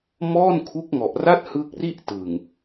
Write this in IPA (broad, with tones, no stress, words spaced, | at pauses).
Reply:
mɔː˥˩nkʰu˦˥k̚ŋɔ˨˩ʔra˥˩t̚ hɯ˦˥k̚ri˥˩ʔ tɯ˨˩ŋ